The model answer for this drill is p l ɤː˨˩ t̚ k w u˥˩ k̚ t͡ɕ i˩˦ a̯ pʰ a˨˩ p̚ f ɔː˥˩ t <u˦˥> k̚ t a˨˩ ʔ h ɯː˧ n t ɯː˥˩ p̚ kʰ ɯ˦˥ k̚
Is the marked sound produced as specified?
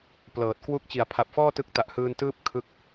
no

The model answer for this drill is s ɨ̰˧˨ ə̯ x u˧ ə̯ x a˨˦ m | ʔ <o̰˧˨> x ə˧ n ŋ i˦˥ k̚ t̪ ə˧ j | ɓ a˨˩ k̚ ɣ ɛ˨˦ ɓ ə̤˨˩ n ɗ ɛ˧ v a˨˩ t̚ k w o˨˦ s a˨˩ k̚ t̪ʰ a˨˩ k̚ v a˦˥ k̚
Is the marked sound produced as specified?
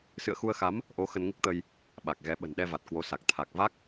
no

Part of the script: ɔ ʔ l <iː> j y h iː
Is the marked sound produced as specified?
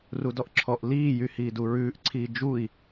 yes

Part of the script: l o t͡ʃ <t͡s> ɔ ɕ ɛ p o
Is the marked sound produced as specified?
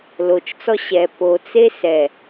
yes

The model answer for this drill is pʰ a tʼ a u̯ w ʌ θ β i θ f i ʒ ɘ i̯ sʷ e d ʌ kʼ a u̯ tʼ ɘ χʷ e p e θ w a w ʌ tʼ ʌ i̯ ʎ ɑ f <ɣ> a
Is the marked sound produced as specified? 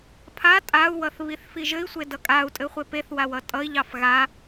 yes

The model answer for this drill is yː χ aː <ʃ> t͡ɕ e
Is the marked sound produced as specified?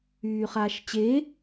yes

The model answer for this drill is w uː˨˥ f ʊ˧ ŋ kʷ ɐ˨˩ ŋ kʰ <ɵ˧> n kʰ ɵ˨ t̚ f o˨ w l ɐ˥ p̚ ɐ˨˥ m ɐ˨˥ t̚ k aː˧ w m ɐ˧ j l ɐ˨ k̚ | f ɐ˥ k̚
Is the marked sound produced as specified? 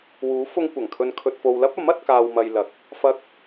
yes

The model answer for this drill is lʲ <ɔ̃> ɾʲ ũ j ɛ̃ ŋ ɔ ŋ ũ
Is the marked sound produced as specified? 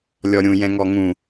no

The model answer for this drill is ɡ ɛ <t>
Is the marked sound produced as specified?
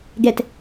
yes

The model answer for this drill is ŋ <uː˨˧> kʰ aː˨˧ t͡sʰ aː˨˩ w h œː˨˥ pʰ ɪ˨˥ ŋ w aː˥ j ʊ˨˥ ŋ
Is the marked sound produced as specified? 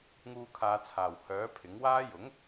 no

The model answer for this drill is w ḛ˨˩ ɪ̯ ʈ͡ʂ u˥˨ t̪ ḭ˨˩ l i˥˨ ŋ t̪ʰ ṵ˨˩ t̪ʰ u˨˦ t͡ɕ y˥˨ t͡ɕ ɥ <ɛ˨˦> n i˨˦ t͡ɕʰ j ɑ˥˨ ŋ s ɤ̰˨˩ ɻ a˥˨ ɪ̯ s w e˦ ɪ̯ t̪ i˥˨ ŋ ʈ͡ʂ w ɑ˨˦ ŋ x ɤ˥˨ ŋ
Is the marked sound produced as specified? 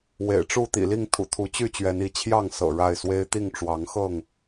yes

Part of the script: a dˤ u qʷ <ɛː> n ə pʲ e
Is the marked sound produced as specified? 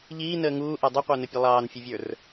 no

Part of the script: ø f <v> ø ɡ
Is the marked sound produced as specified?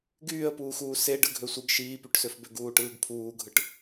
no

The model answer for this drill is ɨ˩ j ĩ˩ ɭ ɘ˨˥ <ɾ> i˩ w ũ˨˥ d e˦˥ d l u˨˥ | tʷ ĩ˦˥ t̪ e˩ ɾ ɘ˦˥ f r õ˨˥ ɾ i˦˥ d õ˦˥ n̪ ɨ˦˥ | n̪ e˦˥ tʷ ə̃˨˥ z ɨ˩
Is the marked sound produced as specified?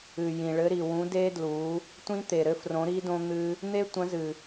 yes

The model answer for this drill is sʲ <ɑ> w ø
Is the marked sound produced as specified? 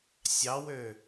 yes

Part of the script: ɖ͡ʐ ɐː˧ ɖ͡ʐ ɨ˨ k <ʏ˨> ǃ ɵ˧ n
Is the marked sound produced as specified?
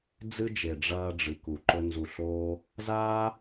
no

